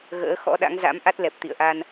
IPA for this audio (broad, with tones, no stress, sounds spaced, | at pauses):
ɣ ə̰ː˧˥ x ɔ̰˧˥ ɗ a̰˧˥ ŋ z a̰˧˥ m ʔ a˦˥ t̚ l ɛ˨˩ p̚ t̪ ḭ˧˨ ə̯ ʔ a˧ n